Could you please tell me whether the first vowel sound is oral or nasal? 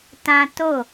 nasal